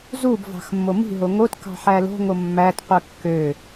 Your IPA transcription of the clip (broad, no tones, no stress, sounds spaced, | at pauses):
z u b v ɑ̤ x mː o m i̤ ɦ o ŋ o t k ɑ̤ ħ æ l o̤ ŋ o mː æ t qʷ ɯ kː ø